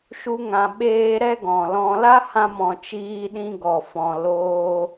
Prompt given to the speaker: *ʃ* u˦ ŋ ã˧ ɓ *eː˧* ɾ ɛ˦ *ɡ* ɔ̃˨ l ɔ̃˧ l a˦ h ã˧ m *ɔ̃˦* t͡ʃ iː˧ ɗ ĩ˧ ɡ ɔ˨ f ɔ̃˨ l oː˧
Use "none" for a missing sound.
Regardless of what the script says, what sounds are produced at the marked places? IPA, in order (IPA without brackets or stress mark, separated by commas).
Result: ʃ, eː˦, ɡ, ɔ̃˨